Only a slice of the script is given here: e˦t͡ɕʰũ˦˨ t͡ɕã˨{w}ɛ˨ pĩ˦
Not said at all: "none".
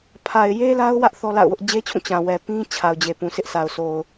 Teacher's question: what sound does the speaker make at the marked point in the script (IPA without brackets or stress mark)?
w